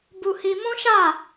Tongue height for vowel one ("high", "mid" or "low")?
high